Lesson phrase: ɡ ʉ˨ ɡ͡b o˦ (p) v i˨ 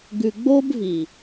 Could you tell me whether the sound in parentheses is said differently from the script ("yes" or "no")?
yes